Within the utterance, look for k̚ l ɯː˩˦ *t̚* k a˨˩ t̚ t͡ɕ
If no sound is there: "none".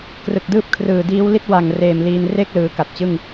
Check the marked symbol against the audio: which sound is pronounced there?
none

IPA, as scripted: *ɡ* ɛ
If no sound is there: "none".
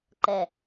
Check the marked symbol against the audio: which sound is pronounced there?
ǃ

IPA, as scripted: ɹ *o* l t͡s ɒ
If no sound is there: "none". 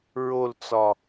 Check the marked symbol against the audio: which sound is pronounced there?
o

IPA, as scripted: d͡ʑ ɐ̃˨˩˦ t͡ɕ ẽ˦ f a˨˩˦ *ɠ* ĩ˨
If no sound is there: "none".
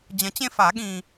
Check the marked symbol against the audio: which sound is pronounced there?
ɠ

